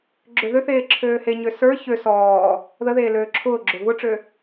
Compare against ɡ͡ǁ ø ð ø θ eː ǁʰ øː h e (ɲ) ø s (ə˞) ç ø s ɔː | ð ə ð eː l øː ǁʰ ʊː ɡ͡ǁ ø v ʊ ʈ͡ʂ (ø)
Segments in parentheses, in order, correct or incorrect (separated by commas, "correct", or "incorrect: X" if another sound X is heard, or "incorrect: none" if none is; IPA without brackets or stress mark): correct, correct, correct